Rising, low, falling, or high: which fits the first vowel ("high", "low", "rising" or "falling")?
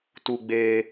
high